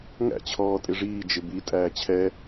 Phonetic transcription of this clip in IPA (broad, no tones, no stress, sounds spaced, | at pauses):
ŋ æ̰ t͡ɕʰ ɔː tʼ ɪ ʐ iː d͡ʒ ɪ b i tʼ æː t͡ɕʰ ɛ